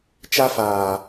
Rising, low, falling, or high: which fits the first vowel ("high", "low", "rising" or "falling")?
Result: high